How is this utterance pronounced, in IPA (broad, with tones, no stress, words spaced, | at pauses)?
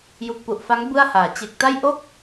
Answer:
ju˨˩k̚pu˨˩ʔfa˦˥ŋ bɯ˥˩a̯haː˩˦ t͡ɕe˨˩k̚ta˥˩j ʔo˥˩k̚